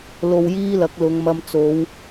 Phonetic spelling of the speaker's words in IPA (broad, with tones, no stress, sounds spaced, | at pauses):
l o˧ w j iː˥ l ɐ˨˥ k̚ l ʊ˨˧ ŋ m ɐ˧ m t͡s o˨˧ w